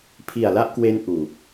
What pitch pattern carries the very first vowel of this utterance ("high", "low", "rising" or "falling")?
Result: low